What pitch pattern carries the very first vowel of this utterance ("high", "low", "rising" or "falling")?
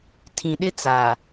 low